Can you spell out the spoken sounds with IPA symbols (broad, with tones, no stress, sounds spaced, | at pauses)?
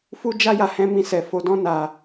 f u˦ d͡ʒ a˦ j a˧ h ɛ̃˧ m ĩ˧ s ɛ˨ f o˨ d ɔ̃˧ n a˨